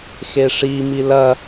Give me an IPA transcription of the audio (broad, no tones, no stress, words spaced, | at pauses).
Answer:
xeʂimi lɐ